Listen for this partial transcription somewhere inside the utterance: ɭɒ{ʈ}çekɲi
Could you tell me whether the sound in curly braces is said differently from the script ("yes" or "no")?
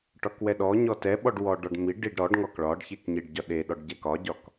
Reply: yes